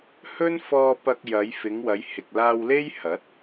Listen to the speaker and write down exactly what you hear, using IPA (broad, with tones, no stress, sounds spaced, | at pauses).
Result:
h ɵ˥ n f ɔː˧ p ɐ˧ k̚ j ɐ˨˧ j f ɪ˨˧ ŋ w ɐ˨˧ j h ɪ˨ k̚ l aː˧ w l e˥ j h ɐ˨˥ t̚